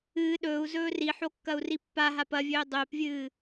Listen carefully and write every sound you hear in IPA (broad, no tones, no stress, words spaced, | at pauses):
ɨː ɗɵːu̯zɵː riħokːɐu̯ri pːaɦap ɐvʲɵː dˤɵːpvʲɨː